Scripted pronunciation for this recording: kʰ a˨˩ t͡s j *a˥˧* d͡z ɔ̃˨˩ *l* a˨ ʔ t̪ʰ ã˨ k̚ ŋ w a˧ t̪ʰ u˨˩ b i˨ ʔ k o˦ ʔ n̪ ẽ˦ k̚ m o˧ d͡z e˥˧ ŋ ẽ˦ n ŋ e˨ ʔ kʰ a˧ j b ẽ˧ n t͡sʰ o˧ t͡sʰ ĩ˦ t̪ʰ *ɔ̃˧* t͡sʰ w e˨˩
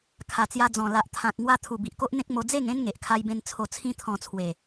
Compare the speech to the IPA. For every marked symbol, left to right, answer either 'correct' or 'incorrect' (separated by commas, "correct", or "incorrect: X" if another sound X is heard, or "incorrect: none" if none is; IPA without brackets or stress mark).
incorrect: a˧, correct, correct